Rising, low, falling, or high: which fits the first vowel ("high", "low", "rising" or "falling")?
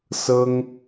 high